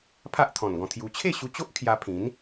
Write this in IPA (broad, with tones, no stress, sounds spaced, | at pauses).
pʰ a˦ ʔ t̪ʰ ɔ̃˨˩ n ɡ ɔ̃˧ t̪ʰ j u˧ t͡ɕʰ e˥˧ ɕ u˧ t͡ɕ o˦ ʔ kʰ j a˧ pʰ ĩ˨˦ n